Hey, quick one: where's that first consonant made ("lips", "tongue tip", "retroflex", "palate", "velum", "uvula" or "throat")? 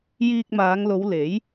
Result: palate